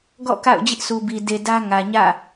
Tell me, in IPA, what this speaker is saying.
ɡ ɔ̰˦˨ k a̰˦˨ ʊ̯ d͡ʑ ɪ˦ ʔ s u˨ b i˨ d e˨ d ä˦ ŋ ä˨ ɲ ä̰˦˨

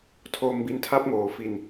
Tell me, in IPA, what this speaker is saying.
tʰ o˧ m b i˧ n tʰ a˦˥ p̚ ŋ oː˩˦ f i˧ n

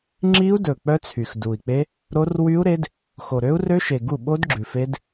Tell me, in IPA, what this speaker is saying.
ŋ͡ǁ i˦˥ u̯ d ɵ˨˩ k͡p œ˦˥ t͡sʰ y˨˩ x d u˨˩ i̯ k͡p e˦˥ | ɾ o˦˥ r w y˦˥ u̯ ɾ e˦˥ d | x o˨˩ ɾ ø˦˥ u̯ r ø˦˥ ʃ e˨˩ ɡ u˥˩ ɓ o˦˥ d ɡ͡ǁ ʉ˨˩ f e˦˥ d

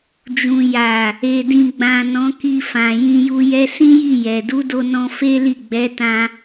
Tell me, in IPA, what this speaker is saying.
d͡ʒ ũ˨ j a˨ | e˨ d ĩ˨ ɡ͡b ã˨ n ɔ̃˨˦ k i˧ f ã˨ j ĩ˧ j u˧ j ɛ˧ s ĩ˦ j i˦˨ j ɛ˨ d u˨˦ d o˧ n ɔ̃˧ f e˦ l i˦˨ ɡ͡b ɛ˨˦ t ã˧

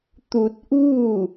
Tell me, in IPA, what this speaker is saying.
t̪ u˧ t̚ ʔ uː˥˨

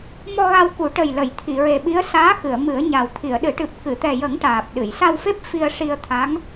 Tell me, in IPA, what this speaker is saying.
m ɔ˧ ɣ a˧ w k u˨˩˦ ʈ ə˨˩ j l ə˨˩˨ j t̪ʰ i˨˩˨ ɹ e˨˩ ɓ i˧˥ ə̯ s aː˧˥ x ɨ˨˩˨ ə̯ m ɨ˨˩˦ ə̯ ɲ a˨˩ w t̪ʰ i˨˩˨ ə̯ ɗ ɨ˨˩˦ ʈ ɨ˨˩ p̚ k ɨ˨˩˨ t̪ ɛ˨˩ j ə˨˩˦ ŋ ʈ aː˨˩ p̚ ɗ ɨ˨˩˨ j s a˧ w f e˦˥ p̚ f i˧ ə̯ ʂ i˧ ə̯ t̪ʰ a˧˥ ŋ

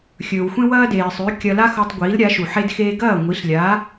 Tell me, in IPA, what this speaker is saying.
xʲ ɵː˩ w xʷ ẽ˥ w ɐː˥ d eː˩ sˤ ʉ˩˥ kʲ ɐ˧ l a˥ x o˧ tˤ ɡʷ iː˩˥ l ɾʲ a˩˥ ʃ u˩ ħ e˧ d x eː˧ ɡ ɐː˥˩ ŋʷ i˩˥ ɬ lʲ a˩˥

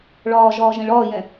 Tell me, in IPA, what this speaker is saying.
ɭ ɒː ʒ ɒː ʒ ɛ̃ ɭ ɒː j ɛ̃

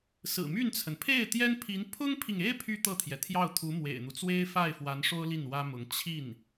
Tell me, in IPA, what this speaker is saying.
s ɹ̩˨˩ m y˥˩ n t͡sʰ ə˩ n pʰ e˥˩ ɪ̯ t̪ j ɛ˥ n pʰ i˧˥ n pʰ ʊ˥ ŋ pʰ i˨ ŋ e˥ ɪ̯ pʰ y˥ t̪ ɤ˥˩ t̪ʰ j ɛ˩ t̪ʰ j ɑ˥˩ ʊ̯ t̪ʰ u˧˥ m w ḛ˨˩ ɪ̯ n̪ u˦ t͡s w e˥ ɪ̯ f a˥˩ ɪ̯ f w a˧˥ n ʂ o˥ ʊ̯ l i˥˩ n w ä˥ m ʊ˧˥ ŋ t͡ɕʰ i˥˩ n

